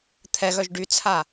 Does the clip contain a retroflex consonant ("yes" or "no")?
yes